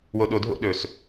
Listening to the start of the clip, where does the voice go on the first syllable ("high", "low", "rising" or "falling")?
low